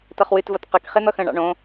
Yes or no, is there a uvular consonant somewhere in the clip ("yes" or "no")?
yes